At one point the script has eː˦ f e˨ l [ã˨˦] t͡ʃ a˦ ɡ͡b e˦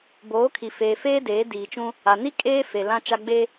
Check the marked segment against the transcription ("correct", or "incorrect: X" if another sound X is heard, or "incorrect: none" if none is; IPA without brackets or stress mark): incorrect: ã˦